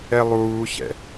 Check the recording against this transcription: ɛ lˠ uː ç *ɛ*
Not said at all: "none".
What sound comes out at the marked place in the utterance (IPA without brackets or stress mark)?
ɛ̰